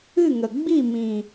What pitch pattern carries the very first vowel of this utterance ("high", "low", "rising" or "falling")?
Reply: falling